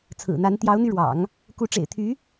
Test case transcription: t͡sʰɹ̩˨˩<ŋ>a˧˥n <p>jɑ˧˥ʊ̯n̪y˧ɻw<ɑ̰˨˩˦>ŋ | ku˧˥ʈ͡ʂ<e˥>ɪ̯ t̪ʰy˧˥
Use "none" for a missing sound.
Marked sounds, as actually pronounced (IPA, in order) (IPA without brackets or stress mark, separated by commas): n̪, t̪, ɑ̰˨˩˦, ḛ˨˩